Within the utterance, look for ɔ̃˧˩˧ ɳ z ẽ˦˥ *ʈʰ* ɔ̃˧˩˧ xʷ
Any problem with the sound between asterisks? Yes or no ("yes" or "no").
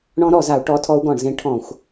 no